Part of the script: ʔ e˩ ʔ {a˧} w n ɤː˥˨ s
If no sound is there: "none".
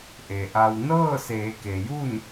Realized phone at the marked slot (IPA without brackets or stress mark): a˧